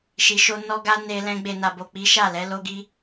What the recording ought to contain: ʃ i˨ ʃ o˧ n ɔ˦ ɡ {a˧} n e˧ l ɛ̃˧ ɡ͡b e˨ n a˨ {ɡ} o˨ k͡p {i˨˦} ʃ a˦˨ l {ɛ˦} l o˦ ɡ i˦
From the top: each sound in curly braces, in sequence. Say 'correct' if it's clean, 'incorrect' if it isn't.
incorrect: a˦, incorrect: b, correct, incorrect: ɛ˨˦

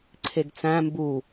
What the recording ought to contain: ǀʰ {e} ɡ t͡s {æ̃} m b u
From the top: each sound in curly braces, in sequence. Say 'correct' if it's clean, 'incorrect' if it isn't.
correct, correct

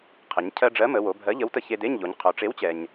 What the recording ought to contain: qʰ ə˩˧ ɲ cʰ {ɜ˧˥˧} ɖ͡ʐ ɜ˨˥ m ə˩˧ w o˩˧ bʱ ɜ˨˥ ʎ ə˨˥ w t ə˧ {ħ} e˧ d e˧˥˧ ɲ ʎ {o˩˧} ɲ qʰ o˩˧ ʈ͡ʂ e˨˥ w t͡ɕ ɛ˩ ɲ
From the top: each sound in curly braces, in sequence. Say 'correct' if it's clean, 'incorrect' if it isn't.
incorrect: ɜ˧, incorrect: ç, correct

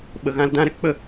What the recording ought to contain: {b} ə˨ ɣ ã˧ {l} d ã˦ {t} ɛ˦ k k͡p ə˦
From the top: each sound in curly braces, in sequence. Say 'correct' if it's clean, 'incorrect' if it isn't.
incorrect: ɓ, correct, incorrect: ɾ

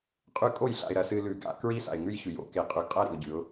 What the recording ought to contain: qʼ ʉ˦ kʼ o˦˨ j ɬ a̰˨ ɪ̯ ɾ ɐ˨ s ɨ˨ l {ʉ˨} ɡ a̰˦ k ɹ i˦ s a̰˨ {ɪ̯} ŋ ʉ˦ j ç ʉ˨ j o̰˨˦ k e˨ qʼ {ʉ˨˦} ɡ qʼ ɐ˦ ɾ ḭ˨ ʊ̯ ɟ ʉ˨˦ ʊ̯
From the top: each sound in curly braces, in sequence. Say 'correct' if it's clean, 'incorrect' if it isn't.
correct, correct, correct

